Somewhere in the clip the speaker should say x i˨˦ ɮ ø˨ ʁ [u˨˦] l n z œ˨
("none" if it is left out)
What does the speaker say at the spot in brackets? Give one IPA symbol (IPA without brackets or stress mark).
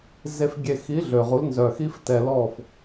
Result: u˨˦